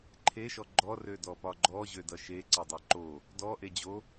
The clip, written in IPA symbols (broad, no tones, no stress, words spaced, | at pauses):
ǃʰeʃɔ ɡ͡ǃɔrødɔpɒ ɡ͡ǃɔʑødʌ ʃe ǀedˤeǃo | dɔ ʔed͡ʑo